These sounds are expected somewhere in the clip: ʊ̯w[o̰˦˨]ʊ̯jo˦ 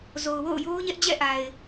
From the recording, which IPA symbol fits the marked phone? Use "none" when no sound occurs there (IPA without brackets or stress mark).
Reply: o̰˦˨